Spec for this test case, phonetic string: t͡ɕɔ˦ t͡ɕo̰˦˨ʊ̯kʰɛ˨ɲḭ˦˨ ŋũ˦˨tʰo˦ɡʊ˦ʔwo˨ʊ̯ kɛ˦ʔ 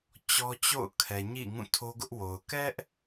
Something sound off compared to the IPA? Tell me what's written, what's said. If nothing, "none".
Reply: none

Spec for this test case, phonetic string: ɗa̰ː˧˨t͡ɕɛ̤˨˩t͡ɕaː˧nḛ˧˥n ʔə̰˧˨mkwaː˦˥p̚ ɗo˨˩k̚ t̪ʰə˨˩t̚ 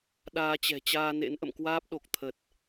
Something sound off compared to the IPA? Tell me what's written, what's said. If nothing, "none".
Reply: a̰ː˧˨ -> aː˧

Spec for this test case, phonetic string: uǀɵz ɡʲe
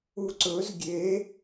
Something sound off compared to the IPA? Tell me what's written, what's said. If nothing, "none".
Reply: none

